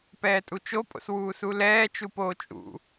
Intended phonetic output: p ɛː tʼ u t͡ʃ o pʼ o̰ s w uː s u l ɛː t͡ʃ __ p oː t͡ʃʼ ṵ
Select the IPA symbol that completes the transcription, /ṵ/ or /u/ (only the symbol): u